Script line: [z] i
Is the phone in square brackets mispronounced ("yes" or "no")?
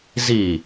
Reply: no